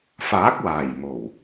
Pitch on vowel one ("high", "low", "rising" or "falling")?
rising